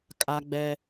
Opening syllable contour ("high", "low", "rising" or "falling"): high